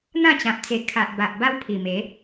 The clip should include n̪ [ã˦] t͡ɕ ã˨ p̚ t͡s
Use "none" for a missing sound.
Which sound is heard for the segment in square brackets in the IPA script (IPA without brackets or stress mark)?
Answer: ã˥˧